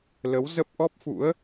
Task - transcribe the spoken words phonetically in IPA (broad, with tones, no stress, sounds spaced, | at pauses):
l ə˨˦ w z ə˦˥ p̚ ʔ ɔ˦˥ p̚ f ṵ˧˥ ə̯